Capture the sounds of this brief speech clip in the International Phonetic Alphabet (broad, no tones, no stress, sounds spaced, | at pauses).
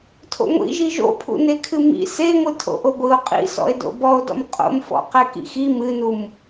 tʰ o̰ ŋʷ ḭ ʒ i ʒ o̰ pʰ ṵ n e kʰ ɨ m ḭ s e ŋʷ ɨ tʰ o̰ ʔ o ɡʷ ɨ o̯ qʼ ḭ s ɔ̰ e̯ d o̰ b ɔ o̯ d ɔ̰ m qʼ o̰ m f ɔ̰ q ɛ k ḭ x i m ɨ n u m